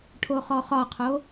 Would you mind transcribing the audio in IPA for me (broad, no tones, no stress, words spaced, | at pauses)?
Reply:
ʈʰoχɔχɒqʰo